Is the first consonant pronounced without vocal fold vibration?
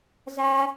no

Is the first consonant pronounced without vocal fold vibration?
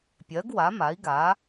yes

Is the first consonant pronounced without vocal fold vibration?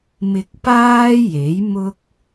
no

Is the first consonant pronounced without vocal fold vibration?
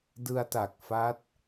no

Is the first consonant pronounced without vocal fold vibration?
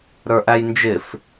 no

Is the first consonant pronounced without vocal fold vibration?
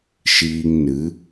yes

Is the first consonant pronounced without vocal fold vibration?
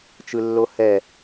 yes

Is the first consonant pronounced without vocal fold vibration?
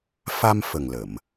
yes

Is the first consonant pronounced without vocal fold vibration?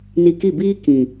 no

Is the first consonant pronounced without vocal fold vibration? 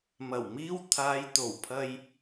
no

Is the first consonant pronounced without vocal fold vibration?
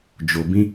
no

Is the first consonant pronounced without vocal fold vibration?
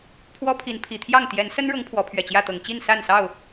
yes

